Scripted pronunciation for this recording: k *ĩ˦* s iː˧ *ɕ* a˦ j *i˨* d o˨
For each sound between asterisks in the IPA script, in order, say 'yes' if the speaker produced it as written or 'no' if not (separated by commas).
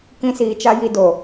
yes, no, no